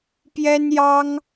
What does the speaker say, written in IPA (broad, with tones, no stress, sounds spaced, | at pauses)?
p j ɛ˥ n j ɑ˥ ŋ